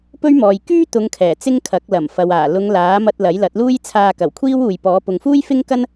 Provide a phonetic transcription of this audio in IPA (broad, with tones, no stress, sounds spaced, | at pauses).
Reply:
p ɵ˥ ɥ m ɔː˨ j k yː˥ t̪ ʊ˨˧ ŋ kʰ ɛː˨˩ t͡s ɪ˥ ŋ kʰ ɐ˨˥ k̚ l ɐ˨˩ m f ɐ˨ w aː˨˩ l ʊ˨˧ ŋ l aː˨˥ m ɐ˧ t̚ l ɐ˨˥ j l ɐ˨˥ t̚ l uː˥ j t͡sʰ aː˧ k ɐ˨˩ w kʷʰ iː˥ w uː˨ j p ɔː˨˥ p ʊ˨ ŋ f uː˥ j f ɪ˥ ŋ k ɐ˥ n